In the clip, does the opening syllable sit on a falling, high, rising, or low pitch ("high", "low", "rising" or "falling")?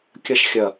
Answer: high